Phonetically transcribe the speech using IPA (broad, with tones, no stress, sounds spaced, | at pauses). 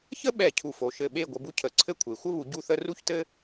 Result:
ç ə˥ ɓ ɛ˧˩ cʰ u˧˩ f o˩˧ ʃ ɘ˧˩ ɓ e˥˧ ɡʷ ə˧ b u˥ cʰ ə˧˩ ǀʰ ɘ˥ kʷʰ e˩˧ xʷ ə˥ β u˩˧ ɟ u˥˧ θ ə˥ r u˥ ç t ɘ˥